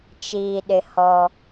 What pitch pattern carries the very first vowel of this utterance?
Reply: low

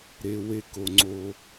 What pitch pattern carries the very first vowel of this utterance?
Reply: low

